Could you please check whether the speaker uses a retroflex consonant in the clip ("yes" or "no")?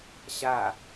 no